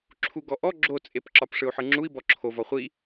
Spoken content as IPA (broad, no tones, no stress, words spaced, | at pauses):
ǁʰuɡɔʔɔ ɡ͡ǁot͡sʼep ǁɒpʂɯu̯ħɯŋ͡ǁui̯ bɔǁʰovɒ χʷi